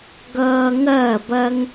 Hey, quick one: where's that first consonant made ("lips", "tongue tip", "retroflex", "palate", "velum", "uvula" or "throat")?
velum